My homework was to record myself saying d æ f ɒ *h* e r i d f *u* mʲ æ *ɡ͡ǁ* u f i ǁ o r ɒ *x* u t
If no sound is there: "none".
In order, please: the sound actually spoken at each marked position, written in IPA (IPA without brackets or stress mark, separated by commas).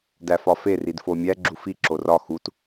f, o, ɡ͡ǁ, x